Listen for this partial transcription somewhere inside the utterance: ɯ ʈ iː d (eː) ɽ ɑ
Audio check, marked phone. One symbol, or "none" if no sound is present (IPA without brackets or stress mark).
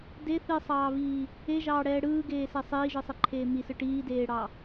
eː